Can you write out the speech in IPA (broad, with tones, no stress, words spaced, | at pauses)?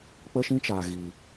k͡pə˦ʃĩ˦t͡ʃaː˨ ɣi˨